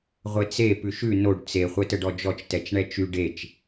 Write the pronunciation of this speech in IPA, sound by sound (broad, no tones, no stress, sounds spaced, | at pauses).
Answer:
ʁʷ e t͡s e p ʉ ʃ ʉ n o ɖ t͡s e χʷ ɛ t ə ɖ ɔ d͡ʒ ɔ t͡ʃ t ɛ t͡ʃ ɳ ɛ t͡ʃ y ɖ e t͡ʃ